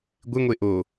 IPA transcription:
ɡʷ ɪ ŋʷ e ʔ o

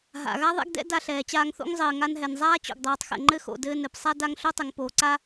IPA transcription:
ɦ a̰˩ ɣ a˥ ðˤ ɛ̰˥ ɡ d ɛ̰˥ d a˧ ɬ ɛː˩ t͡ɕ aː˧ ŋ θ o̰˥ ŋ zˤ ɘː˩ ŋ a˧ n ɦ ɛ˩ n zˤ aː˥ t͡ɕ o̰˩ ɡ dˤ oː˩ tˤ x ɛ̰˩ ŋ͡ǃ ɘ˥ x o̰˩ d ɘː˧ n ɘ˩ p sˤ a˥ d a˧ ŋ ɬ o˥ tˤ ɘ˩ ŋ p oː˩ ǀ a˥

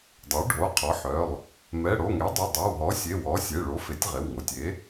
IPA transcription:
dˤ o˩˥ ɖʱ o˩˧˩ qʰ ɔ˩˥ ħ œ˩˧˩ lˠ | m ɛ˩˧˩ ɽ o˩˧˩ ŋ e˩˥ dˤ o˩˧˩ dˤ œ˩˧˩ w ɦ ɔ˩˥ sʲ e˩˧˩ w ɔ˩˥ sʲ e˩˧˩ ɭ o˩˥ f e˩˥ tʲ ʁ e˩˧˩ w ŋ o˩˧˩ tʲ e˩˥

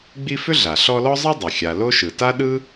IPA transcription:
ɡ͡b i˦ f ʏ˥ ɮ a˩ ɬ ɔ˦ l ɔ˥ zˤ ɯ˥ dˤ ɯ˩ xʲ a˨ l o˥ ʃ ɯ˩ t a˥ ɗ ɯ˥

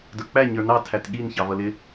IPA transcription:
d ə˞ k͡p æ ɲ ə˞ n ɑ tʰ æ t ɠ i n ç ɑ v ʌ l ɪ

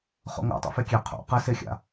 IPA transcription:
χ o̰ ŋ a̰ tˤ o̰ f e kʲ e qʰ o̰ q ɘ s e xʲ a̰

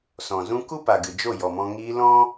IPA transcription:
s ɔ̃˨ z ũ˧ k u˦ p a˨ ɡ ɨ˨ d͡ʒ o˦˨ j ɔ˨ m ɔ̃˧ ŋ iː˧ l ɔ̃˦

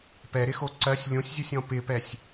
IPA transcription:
p ɛ ɾ ɪ x o ǀ ɜ sʲ lʲ õ sʲ zʲ o sʲ ɔ̃ p ɪ p ɛ sʲ

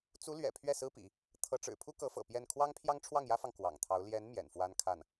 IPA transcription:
t͡s u˧˥ l ɥ ɛ̰˨˩ pʰ ɥ ɛ˥˩ s ɹ̩˥ p ḭ˨˩˦ | t̪ʰ ɤ˧˥ ʈ͡ʂ ɻ̩˨˩ pʰ u˥ k ɤ˧˥ f ɤ̰˨˩ p j ɛ˥˩ n kʰ w ɑ˥ ŋ pʰ j ɑ˥ ŋ ʈ͡ʂʰ w ɑ˥˩ ŋ j ä˥ f ɑ˨ ŋ k w ɑ̰˨˩ ŋ t̪ʰ ɑ˧˥ ʊ̯ l j ɛ˧˥ n m j ɛ̰˨˩ n f w a˥ n kʰ a˥˩ n

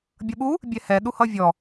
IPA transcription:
bʲ ʌ ɓ u | bʲ ɛ h ɛ ɗ u h ʌ vʲ ɔ

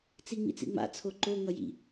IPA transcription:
t͡s i ŋ͡m ḭ t͡s ḭ ŋ͡m a̰ t͡sʰ o ǃ o ŋ ʌ j ḭ

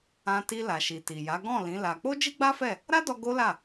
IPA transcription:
ã˧ t i˧ l a˨ ʃ i˨ t i˨ j a˨˦ ɡ ɔ̃˦˨ l ĩ˨˦ l a˧ k͡p o˦ d͡ʒ i˦ ɡ͡b a˦ f ɛ˦˨ | ɾ a˦ d ɔ˧ ɡ o˦ l a˦˨

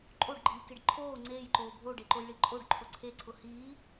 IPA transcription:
ǃʼ o ɖ ɡ͡ǃ iː k e ɖ ǃʰ oː ŋ͡ǀ eː j ǃ oː bʱ o ɖ e ǃ o j ɭ i ǃʼ o ɖ ǃʰ ʊ ǀʰ e ǀʰ ʊ h iː

